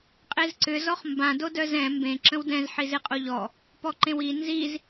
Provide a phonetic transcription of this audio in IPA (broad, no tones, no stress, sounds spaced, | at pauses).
qʼ e z ǀ ʏ z ɔ χ m b ã d o d œ z ɛ̃ m b ẽ ǁ ə̃ w d ɛ̃ z ħ i z e qʼ o ʎ ɔ | p ɔ ǃ ẽ w i n z i z